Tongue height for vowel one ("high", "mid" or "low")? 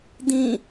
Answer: high